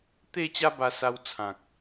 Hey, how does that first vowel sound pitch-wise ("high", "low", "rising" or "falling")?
falling